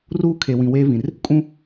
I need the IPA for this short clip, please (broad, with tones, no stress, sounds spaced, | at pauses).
r uː˦ kʰ e˨ w ĩ˨ w eː˦ v ĩ˨ r | kʼ ũ˦